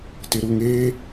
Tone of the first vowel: low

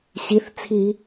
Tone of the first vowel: rising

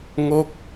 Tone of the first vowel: falling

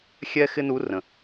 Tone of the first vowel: high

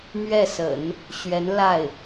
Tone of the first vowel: falling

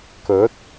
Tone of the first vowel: rising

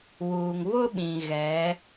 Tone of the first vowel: low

